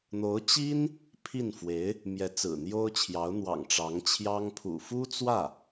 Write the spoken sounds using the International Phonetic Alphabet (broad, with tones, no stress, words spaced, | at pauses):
n̪o˧˥ʊ̯t͡ɕi˥n | pʰi˥˩nfwe˧˥ɪ̯ | mjɛ˧˥t͡sɹ̩˨˩n̪jo˥ʊ̯t͡ɕʰjɑ˧˥ʊ̯ n̪wɑ̰˨˩ŋ ʈ͡ʂɑ˧˥ŋt͡ɕʰjɑ˥ŋ pʰṵ˨˩fu˥t͡swä˥˩